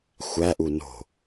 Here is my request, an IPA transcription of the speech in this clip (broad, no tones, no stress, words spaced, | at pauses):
xʷæʔu no̤